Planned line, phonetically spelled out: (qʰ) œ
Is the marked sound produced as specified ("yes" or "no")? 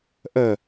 no